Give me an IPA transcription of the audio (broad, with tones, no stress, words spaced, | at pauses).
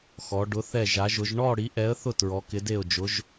xɔ˧˥ ɖʊ˧˥θɛ˥˧ʒa˧˥ʒʊ˧˥ʒ ɳɔ˥˧ ɽi˧˥ʔɛ˧˥ə̯θʊ˥˧ tɹɔ˧˥kɪ˧˥de˥˧ʊ̯d͡ʒʊ˧˥ʒ